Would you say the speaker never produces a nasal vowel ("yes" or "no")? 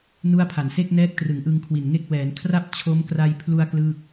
yes